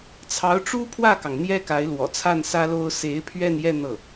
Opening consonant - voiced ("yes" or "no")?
no